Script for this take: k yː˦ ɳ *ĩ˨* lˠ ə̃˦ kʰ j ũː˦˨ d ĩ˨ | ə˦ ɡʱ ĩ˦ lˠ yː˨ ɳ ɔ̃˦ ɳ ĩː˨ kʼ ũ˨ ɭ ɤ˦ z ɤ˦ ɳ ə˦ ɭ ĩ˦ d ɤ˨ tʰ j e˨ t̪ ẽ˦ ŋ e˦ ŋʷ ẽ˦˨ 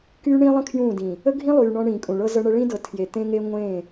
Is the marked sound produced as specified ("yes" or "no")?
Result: no